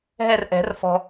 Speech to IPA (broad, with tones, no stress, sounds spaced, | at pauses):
ɦ ɛ˦˨ r ʔ ɛ̤˨˩˦ r f ɔ̤˨